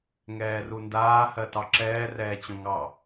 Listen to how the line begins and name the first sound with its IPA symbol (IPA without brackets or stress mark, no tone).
ŋ